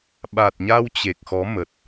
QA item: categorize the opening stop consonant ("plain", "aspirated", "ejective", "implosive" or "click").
implosive